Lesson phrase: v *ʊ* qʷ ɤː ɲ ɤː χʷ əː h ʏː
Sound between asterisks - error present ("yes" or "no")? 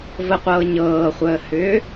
yes